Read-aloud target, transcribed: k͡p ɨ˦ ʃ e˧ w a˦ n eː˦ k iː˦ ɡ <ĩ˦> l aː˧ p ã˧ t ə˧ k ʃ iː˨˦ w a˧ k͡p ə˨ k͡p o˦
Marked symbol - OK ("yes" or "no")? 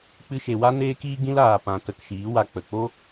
yes